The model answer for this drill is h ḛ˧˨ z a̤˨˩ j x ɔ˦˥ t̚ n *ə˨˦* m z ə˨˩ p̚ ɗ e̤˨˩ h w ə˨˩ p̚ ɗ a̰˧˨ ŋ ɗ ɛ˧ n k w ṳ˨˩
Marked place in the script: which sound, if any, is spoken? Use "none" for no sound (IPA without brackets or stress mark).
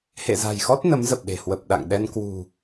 ə˨˦